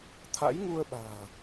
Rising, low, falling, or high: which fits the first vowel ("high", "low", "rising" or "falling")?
rising